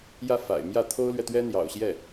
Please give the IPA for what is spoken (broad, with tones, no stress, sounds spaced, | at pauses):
j ä˥˩ f a̰˨˩ ɪ̯ m j ä˥˩ t̪ʰ o˥ ʊ̯ l ɥ ɛ˨ t̪ ɥ ɛ˥ n̪ j ɑ̰˨˩ ʊ̯ ɕ j ɛ˥˩